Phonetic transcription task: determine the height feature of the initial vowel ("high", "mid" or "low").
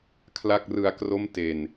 low